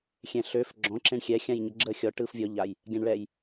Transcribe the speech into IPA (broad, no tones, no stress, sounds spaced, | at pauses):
xʲ ɛ̃ ɬ ø f ɡ͡ǁ ɔ̃ ǁ ẽ ɳ xʲ ɛ xʲ ã j ɲ ə ɡ͡ǁ ə xʲ ɔ ʈ ɯ f vʲ ɔ ʎ a j | ɡʲ ã ɳ ɭ ɛ j